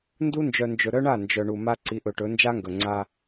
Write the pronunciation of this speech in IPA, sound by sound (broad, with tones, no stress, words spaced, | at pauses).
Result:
ndu˦nd͡ʒœ˨nd͡ʒɵ˨ ɾœ˦ɳa˦˨ nd͡ʒœ˨ ɳu˨ma˦ ǀi˨˦ʔɵ˨ʈɵ˨˦ nd͡ʒa˦ŋɡɵ˨ ŋ͡ǀa˦